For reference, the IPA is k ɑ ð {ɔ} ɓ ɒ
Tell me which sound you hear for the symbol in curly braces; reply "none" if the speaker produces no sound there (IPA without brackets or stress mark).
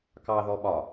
ɔ